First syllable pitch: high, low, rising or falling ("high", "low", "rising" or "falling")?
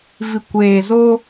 low